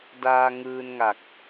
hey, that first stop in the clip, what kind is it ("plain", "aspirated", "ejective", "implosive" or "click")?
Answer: plain